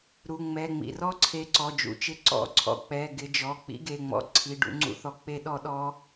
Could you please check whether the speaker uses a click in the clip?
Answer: yes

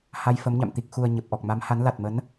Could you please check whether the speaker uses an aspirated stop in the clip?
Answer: no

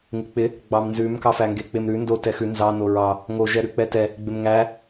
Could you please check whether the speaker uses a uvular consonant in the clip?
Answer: no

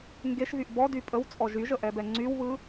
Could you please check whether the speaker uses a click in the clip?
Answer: yes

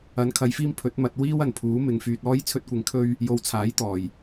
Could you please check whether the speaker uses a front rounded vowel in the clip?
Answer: yes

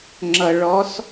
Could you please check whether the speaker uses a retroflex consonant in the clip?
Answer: yes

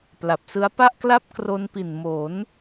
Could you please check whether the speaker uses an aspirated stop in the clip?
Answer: no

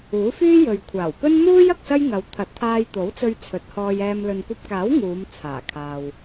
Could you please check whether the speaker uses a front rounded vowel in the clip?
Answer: yes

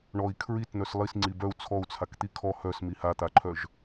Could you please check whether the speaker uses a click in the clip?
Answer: yes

